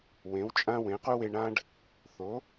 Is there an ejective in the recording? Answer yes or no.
yes